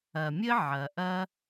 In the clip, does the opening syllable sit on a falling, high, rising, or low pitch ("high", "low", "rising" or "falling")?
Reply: low